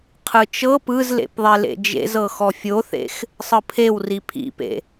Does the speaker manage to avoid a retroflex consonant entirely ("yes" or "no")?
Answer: yes